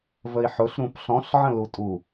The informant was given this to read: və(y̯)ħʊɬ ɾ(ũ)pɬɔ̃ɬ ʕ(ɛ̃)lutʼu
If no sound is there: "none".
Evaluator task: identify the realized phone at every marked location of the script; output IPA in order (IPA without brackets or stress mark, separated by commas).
i̯, ũ, ə̃